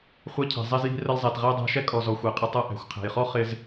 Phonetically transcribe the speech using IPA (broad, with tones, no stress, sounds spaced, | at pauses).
χʷ ɛ˧ cʰ æ̤˩ zˤ ɛ˧ z j i̤˧ r ə˧ l zˤ ɛ˩ t ʁ æ˥ dˤ æ̤˧ ʃ ɛ˥ kʼ ɔ˩ z ɔ˩ xʷ æ˩ qʼ ɪ˧ tˤ ʌ˧ ʔ æ̤˩ xʷ qʰ æ̤˩ j χ ɔ˥ χ ɪ˧ z